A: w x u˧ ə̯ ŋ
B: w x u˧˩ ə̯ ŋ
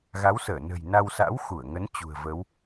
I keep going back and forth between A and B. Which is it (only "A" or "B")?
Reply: B